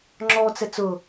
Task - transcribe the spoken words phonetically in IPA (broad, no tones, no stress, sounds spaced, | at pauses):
ŋ͡ǁ ɔ t͡s ɛ t͡s ʊ